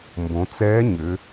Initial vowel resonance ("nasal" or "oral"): nasal